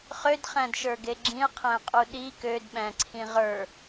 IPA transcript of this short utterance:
χ ø d χ æ̃ d ʃ ə˞ ɡ e ɡ͡ǁ ĩ ɐ̯ qʰ æ̃ qʼ u ɗ i k ø d ɓ æ̃ ǀʰ ĩ ʁ ə˞

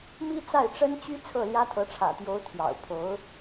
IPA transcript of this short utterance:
m i˥ t͡s a˥˩ ɪ̯ ʈ͡ʂ ə˥ n t͡ɕ y˥ t͡sʰ ɤ˥˩ l j ä˥ t̪ʰ ɤ˧˥ ʈ͡ʂʰ ä̰˨˩ t̪ j o˧˥ ʊ̯ t̪ʰ j ɑ̰˨˩ ʊ̯ pʰ o˧˥ ʊ̯

